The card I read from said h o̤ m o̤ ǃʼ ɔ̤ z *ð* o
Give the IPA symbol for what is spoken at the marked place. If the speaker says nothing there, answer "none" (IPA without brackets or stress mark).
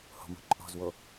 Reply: w